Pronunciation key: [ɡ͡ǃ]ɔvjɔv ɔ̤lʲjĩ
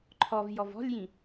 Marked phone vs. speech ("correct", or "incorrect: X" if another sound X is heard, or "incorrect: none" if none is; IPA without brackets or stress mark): incorrect: ǃʰ